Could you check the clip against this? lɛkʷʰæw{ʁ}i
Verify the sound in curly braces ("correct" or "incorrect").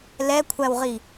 correct